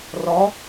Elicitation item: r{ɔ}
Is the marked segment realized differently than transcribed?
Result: no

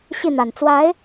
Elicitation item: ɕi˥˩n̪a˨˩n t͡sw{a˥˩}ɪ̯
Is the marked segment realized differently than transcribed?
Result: yes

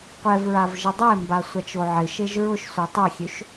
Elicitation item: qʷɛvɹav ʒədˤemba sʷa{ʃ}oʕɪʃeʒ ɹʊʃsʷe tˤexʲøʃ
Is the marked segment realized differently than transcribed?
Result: yes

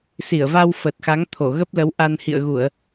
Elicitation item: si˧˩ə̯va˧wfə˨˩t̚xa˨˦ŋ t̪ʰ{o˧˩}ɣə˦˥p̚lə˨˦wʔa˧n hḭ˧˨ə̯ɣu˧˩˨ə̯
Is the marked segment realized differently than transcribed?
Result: no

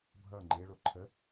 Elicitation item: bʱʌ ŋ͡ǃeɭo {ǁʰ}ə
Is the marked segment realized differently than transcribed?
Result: yes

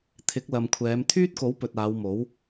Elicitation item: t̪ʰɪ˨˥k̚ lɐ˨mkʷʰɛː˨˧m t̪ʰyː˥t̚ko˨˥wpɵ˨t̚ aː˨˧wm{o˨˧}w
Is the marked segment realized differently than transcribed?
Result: yes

